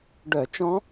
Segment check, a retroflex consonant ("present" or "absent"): present